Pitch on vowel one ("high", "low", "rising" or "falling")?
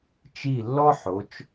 falling